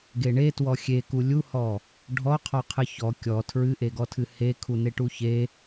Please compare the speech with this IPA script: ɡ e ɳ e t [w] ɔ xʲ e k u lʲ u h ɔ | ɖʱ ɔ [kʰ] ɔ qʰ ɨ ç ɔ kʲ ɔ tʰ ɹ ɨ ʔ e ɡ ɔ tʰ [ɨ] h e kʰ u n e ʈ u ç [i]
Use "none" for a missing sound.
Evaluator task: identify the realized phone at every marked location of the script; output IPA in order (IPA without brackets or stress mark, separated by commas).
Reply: w, qʰ, ɨ, e